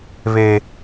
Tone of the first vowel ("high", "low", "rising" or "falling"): low